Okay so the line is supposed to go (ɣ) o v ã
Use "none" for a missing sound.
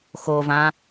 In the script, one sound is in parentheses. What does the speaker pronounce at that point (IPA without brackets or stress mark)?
x